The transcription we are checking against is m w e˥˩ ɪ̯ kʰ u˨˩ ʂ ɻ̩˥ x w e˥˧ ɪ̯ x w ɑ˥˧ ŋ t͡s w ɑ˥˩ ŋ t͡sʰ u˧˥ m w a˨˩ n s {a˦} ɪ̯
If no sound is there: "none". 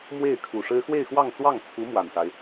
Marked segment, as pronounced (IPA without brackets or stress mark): a˦